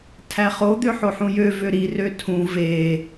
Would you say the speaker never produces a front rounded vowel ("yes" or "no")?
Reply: no